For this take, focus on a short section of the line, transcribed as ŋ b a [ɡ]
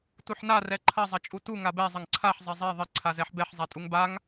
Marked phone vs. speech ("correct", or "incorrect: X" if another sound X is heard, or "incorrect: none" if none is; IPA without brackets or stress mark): incorrect: ŋ